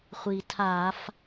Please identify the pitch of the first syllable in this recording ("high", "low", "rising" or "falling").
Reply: low